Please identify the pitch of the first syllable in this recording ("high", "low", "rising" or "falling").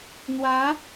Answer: rising